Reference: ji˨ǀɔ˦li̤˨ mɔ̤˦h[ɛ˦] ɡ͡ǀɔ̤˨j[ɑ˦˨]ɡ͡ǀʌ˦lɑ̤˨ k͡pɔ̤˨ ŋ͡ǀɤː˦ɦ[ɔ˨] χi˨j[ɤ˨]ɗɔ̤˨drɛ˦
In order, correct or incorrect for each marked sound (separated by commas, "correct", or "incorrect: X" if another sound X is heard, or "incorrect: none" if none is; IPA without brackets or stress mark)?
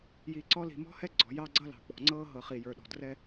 correct, incorrect: ɑ˦, incorrect: ɤ˨, incorrect: ə˞˨